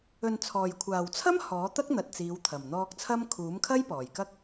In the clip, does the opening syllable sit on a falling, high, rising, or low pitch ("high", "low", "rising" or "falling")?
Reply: low